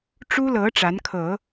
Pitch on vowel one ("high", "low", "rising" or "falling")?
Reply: high